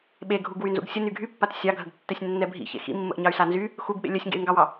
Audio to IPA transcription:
ɓeɡʱuɡ wynzṵɡsʲə nyɡʱypːat sʲɑɡʱəɡtːɛsʲ nːɛbʱḭ çḛxḭmːə̰ʔɲɑy̯ sanzy | xuɡɓḛ lʲœsʲŋɡḛy̯ŋɡɑwɑ

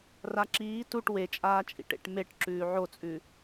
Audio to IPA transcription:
raǁiː tuʈ wet͡ʃʼaːt͡ʃʼḭʈ ḛʈmeʈ ǁʉːʕot͡sʼʉ

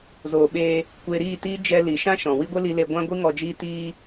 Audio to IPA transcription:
zoː˨ɓeː˧ | kʷeː˧ɾiː˦˨tiː˦ d͡ʒɛ˧ li˨ʃã˦ʃɔ̃˨ wi˦ɡʷe˦li˧le˧ ɡʷã˦ɡʷi˦ ŋɔ˧d͡ʒiː˦tiː˦

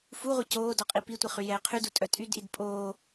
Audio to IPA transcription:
fuʁʷɛ coː dɔqʼipitʷi χyjɛːqʰydu tʼœtʼydʔid pʼoː

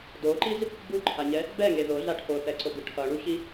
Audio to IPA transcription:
doǃiz | buǃʰaɲɛ | bɛŋe ðoɮa ʈʰoθɛǀoɡɯ ʈʰʌɳuçi

